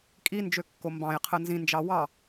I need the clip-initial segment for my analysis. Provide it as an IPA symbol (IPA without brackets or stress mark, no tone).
kʼ